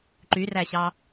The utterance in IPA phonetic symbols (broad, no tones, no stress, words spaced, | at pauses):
ǃyræɕɑ